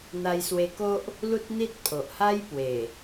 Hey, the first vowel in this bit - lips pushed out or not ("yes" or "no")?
no